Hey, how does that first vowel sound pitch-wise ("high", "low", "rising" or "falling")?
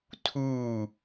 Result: falling